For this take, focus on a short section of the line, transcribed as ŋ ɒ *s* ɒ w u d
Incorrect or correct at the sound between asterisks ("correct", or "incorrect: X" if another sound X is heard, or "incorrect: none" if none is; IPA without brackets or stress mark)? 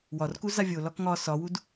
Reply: correct